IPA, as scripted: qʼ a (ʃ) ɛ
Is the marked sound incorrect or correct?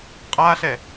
incorrect